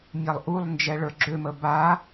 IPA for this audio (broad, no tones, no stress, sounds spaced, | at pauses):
mʲ a lˠ ʔ u lˠ n d͡ʒ ɛ ɭ ə˞ ɡ͡ǁ ø m ə b a